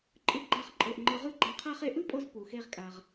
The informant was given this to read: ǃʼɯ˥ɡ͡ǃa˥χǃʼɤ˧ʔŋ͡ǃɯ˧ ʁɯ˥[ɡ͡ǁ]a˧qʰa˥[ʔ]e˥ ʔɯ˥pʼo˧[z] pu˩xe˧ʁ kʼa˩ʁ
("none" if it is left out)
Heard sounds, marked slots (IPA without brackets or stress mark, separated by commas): ɡ͡ǃ, χ, z